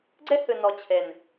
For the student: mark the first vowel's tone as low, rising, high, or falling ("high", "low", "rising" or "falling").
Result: high